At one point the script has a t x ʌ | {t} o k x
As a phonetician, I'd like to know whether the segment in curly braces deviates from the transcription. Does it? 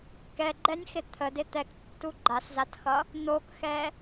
yes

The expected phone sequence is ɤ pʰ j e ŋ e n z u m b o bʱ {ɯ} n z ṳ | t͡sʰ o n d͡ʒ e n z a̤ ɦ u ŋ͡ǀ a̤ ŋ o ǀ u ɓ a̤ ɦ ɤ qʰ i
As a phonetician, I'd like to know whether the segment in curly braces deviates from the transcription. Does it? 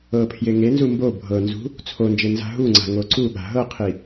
yes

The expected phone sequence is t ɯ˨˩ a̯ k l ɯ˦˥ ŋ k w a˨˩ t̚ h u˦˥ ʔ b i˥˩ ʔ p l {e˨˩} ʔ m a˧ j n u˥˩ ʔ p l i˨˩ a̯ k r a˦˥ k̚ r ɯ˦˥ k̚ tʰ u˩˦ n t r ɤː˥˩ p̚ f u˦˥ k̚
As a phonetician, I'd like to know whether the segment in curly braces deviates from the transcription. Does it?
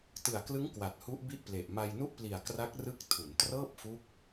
no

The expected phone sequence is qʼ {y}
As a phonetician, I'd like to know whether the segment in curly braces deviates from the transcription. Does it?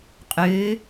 yes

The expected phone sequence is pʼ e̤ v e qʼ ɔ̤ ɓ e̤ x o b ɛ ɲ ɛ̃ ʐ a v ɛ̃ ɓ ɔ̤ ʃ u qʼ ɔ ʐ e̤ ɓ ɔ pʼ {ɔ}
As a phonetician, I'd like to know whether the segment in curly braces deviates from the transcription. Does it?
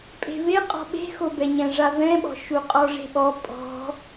yes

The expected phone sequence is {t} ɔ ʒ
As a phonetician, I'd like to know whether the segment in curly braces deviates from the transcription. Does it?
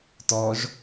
no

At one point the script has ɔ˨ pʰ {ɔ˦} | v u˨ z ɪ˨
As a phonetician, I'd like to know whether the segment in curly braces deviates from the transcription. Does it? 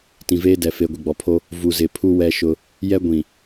yes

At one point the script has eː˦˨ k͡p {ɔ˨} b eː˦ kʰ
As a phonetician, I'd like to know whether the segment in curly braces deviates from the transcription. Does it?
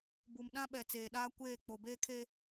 yes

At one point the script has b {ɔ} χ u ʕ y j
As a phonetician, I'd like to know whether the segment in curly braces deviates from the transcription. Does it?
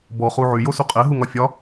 no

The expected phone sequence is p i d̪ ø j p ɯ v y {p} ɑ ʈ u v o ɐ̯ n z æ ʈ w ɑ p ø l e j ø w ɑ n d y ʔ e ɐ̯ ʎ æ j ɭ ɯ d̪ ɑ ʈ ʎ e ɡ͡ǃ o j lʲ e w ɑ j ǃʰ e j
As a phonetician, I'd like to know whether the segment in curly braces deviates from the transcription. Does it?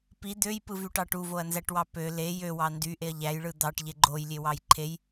yes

